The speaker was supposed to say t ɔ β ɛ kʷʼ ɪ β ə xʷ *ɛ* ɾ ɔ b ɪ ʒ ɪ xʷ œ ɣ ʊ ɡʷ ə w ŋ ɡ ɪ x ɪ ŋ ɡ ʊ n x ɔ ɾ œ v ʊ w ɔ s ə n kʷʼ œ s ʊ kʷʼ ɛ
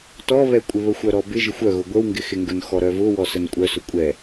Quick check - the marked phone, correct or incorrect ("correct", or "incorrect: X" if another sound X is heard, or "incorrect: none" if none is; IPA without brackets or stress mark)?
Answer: incorrect: œ